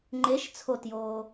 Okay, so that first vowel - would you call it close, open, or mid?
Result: mid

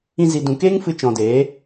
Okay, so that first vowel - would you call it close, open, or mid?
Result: close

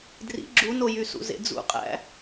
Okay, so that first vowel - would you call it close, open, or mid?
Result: close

